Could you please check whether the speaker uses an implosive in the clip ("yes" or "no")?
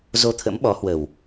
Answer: yes